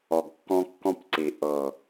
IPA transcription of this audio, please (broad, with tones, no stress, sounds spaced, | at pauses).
ɔ˨ ɡ kː ɔ̃˧ kː ɔ̃˧ p ǀ i˨ ʔ ɤ˨